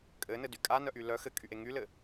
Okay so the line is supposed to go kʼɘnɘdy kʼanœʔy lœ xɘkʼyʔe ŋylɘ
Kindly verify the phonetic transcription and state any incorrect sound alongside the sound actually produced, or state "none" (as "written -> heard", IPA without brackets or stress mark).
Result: none